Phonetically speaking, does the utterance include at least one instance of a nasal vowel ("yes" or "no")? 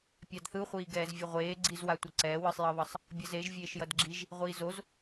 no